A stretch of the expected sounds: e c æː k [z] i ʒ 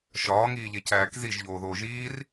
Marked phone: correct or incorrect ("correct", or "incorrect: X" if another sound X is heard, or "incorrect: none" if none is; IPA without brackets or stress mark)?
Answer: correct